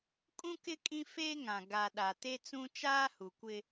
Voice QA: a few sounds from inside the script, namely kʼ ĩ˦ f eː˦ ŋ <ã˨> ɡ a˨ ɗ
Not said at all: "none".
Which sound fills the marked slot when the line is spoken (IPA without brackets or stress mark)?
ã˨